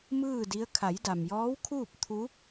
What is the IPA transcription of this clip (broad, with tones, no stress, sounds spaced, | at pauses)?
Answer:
m ɯː˥˨ d i˧˥ ə̯ kʰ a˩˧ j d a˩ m j ɔː˧˥ w kʰ uː˥˨ p̚ t̪ʰ u˧˥